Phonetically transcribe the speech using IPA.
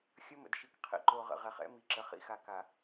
xʲ ə˦ m ə̰˨ d ʃ i˨ k qʰ ḭ˨ ǃ o˨ ʁ ə̰˨ ʁ ɛ˨ χ ɛ̰˦ m i˨ ǁ ə˨ χ ḭ˦ x a˨ k a˨

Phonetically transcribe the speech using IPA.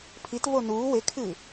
pʰ i t v o n uː w e kʰ ɨː

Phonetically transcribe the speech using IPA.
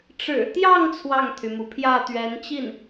ʈ͡ʂ ɻ̩˨˩ t̪ j ɑ˥˧ ŋ t͡sʰ w ɑ˥˩ ŋ t̪ʰ y˩ m u˩ pʰ j ä˥˩ t̪ ɥ ɛ˧˥ n t͡ɕ i˥˩ n

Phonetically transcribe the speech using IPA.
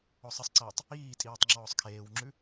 ɔ sˤ ə sˤ ǀ iː tˤ | iː tʼ iː tˤ ŋ͡ǁ ɔː sˤ kʰ eː w ŋ͡ǁ ʉ

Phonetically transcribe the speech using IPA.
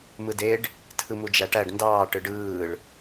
m ɯ d e ɖ | tʰ ɯ m u d͡ʒ æ ʈ æ ɖ n d ɑː ʈ ɯ ɖ ɯː ɭ

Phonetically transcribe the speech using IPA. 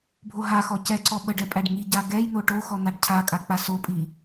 bʱ o ɦ a x ɔ c ɛ ǀ ɔ ɓ ə ɖ ɛ pʼ æ ɖ ŋ i ɟ a ɡ ɛ j n̪ o ʈ o x ɔ n̪ a ɖ cʰ a kʼ a k͡p a s o pʼ i

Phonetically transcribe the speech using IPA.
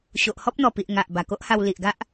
ɕ o˨ ʔ h ɔ˦ p̚ n̪ ɔ˨˩ p i˨ ʔ ŋ a˨ ʔ b a˨˩ k o˦ ʔ h a˧ w l i˨ ʔ ɡ a˦ ʔ

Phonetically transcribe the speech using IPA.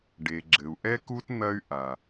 ɖ e˨ ɡ͡ǁ ɘ˨ u̯ ʔ ɛ˦ k u˦ t n̪ ɐ˦ y̯ ʔ a˨

